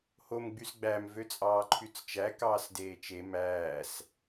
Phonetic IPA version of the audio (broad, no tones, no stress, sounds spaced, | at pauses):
h o m ɡ͡b y s ɡ͡b æ m v ø t͡sʼ ɑː ǃʰ y t͡s t͡ʃ æ k ɑː s d eː t͡ʃ e m æː s